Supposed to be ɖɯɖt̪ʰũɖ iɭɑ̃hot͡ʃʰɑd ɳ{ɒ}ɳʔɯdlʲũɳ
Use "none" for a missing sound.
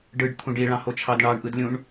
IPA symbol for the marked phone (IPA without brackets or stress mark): ɑ